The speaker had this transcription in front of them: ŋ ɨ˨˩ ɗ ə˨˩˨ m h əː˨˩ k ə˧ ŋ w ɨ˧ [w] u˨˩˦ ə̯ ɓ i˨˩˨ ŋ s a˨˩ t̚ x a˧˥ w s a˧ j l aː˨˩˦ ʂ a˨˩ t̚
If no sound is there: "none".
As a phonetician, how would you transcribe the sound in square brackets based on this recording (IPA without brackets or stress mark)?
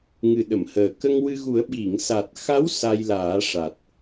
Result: ɣ